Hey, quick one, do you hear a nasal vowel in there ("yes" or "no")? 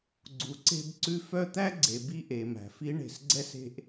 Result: no